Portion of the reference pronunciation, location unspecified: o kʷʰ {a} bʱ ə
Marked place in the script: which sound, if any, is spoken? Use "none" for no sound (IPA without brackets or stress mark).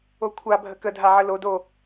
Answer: a